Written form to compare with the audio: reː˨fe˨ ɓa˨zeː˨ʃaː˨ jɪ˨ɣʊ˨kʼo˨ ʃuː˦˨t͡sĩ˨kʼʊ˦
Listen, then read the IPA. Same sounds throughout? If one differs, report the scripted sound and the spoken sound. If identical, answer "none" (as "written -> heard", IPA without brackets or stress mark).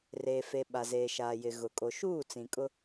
none